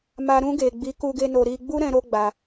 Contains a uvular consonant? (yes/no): no